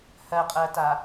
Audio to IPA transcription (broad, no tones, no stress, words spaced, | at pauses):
hɜqʼɜta